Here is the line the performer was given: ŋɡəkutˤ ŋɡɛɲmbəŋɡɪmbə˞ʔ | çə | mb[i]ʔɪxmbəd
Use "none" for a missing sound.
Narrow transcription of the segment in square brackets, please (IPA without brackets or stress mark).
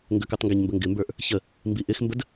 i